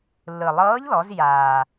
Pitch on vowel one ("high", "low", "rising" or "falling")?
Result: low